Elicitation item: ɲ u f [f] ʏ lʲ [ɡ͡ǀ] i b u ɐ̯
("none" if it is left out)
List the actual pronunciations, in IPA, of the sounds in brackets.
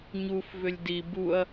v, d

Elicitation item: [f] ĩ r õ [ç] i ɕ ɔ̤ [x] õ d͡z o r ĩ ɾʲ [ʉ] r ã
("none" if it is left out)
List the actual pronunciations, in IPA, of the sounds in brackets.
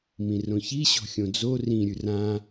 m, ç, xʲ, ʉ

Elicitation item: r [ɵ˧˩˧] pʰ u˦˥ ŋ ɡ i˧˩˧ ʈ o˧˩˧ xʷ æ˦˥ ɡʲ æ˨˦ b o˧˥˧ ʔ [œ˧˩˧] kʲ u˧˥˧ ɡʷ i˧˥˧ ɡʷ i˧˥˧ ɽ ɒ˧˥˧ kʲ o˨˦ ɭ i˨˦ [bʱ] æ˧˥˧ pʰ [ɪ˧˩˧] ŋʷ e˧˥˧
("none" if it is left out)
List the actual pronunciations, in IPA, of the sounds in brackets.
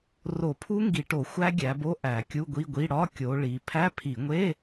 o˧˩˧, æ˧˩˧, pʰ, i˧˩˧

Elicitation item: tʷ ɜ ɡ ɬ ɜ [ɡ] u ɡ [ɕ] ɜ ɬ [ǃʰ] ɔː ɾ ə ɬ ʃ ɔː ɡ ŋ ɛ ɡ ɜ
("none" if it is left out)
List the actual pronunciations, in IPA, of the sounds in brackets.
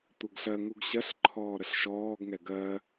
ŋ, ɕ, ǃʰ

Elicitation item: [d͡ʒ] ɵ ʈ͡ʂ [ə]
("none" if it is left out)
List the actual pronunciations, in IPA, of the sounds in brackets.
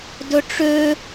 d, ø

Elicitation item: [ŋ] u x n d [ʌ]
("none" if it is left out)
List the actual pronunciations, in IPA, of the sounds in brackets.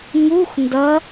ŋ, ʌ

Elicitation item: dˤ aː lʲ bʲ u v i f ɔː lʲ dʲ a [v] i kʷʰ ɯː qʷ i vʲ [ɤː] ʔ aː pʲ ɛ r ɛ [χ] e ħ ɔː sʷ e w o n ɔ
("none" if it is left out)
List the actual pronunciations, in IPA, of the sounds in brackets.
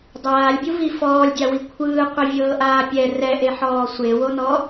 w, ɤː, ʔ

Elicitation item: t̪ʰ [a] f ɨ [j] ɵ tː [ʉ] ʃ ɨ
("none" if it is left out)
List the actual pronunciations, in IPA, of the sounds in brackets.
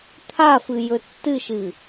a, j, ɨ

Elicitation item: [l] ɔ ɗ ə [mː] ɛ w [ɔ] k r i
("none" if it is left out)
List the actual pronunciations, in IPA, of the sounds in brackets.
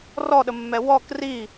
r, mː, ɔ

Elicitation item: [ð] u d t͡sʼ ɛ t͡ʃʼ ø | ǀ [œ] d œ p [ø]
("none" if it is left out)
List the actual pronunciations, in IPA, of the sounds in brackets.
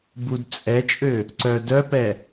b, œ, ɛ

